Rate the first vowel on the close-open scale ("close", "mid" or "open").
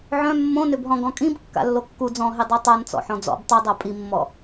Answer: mid